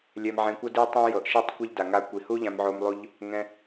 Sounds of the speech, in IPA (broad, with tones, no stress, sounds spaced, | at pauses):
lʲ ɛ˧ m ʕ ẽ˧ kʷ ɤ˦ d i˦ tˤ ẽ˦ j ɤ˨ ʔ ʃ i˦˨ tˤ kʷ e˦ ʎ d a˨ ŋ a˧ kʷ i˨ h u˦ ʎ ã˦ m ʕ o˦ m lˠ u˦ ʎ | ŋ ɛ̃˧